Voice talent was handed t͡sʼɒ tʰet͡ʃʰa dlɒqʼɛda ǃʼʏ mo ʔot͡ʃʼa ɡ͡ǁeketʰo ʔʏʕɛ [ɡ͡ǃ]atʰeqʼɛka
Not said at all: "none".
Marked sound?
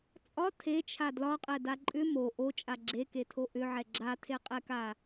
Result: ɡ͡ǁ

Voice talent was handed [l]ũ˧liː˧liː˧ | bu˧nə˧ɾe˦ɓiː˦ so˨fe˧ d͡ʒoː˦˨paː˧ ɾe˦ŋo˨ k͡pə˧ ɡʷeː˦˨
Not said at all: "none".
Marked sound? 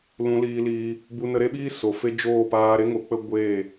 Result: l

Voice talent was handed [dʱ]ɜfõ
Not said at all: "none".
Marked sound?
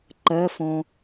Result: ǃ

